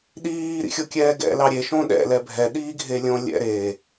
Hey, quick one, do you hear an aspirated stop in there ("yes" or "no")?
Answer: no